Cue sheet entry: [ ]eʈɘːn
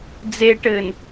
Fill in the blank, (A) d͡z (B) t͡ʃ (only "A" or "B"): A